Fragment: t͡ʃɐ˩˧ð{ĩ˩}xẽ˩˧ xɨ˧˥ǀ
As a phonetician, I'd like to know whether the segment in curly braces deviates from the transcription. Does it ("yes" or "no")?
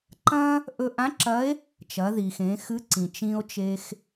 yes